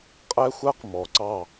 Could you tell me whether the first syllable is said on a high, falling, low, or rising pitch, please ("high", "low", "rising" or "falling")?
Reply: high